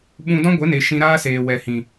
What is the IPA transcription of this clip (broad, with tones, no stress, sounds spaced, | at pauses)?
ɓ ũ˦ d ɔ̃˦ ɡʷ e˨˦ n e˨ ʃ ĩ˧ ɾ aː˦ s eː˨ w ɛ˨ h ĩ˨